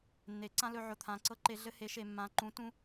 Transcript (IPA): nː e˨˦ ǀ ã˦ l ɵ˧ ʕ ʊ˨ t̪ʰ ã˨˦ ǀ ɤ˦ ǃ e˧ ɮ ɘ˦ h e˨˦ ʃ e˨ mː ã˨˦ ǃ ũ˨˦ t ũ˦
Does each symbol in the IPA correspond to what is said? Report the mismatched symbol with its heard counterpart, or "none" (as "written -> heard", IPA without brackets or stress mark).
none